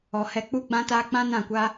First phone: ɔ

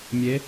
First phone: mʲ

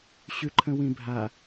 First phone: ɕ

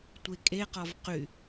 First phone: tʷ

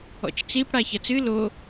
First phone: ɔ̰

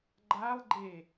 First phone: ɡ͡ǃ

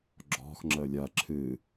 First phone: ɡ͡ǁ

